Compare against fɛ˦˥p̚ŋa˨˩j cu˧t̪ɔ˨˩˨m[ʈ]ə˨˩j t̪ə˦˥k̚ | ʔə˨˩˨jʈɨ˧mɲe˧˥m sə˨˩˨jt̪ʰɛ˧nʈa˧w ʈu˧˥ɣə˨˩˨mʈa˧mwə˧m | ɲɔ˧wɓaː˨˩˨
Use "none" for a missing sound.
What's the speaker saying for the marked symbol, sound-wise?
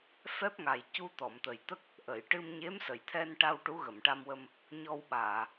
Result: t̪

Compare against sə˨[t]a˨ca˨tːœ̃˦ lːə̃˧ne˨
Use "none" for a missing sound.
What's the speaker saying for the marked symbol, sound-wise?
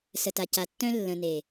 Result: t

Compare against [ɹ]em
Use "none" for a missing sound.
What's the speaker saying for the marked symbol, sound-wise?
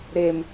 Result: ɾ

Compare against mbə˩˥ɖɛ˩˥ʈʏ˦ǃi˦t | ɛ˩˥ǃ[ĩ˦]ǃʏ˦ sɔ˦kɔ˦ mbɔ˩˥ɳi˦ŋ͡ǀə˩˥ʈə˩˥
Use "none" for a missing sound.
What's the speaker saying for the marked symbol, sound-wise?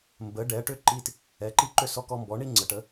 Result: i˦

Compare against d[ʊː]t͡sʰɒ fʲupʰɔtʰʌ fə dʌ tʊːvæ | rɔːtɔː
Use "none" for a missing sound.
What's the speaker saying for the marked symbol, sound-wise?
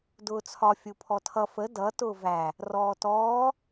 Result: ʊː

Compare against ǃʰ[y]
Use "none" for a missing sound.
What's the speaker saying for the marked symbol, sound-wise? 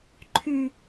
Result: y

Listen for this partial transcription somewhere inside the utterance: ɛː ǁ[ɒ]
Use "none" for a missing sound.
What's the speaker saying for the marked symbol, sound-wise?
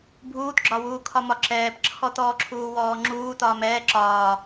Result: ɒː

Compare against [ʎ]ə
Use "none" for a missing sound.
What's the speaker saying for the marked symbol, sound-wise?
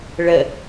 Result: ɭ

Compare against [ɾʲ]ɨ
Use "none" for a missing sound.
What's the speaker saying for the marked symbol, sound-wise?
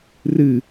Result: r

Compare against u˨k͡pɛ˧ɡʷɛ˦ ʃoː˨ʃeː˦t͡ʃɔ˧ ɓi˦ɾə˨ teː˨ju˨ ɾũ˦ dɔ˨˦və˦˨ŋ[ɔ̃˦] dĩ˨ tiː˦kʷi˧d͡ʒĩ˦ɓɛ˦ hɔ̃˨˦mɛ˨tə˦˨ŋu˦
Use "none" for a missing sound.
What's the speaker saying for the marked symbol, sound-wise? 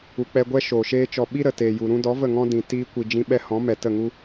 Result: ɔ̃˦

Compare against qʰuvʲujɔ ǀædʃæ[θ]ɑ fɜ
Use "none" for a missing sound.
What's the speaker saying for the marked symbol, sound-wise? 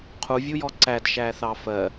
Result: θ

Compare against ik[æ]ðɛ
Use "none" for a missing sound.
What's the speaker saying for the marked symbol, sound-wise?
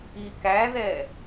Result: æ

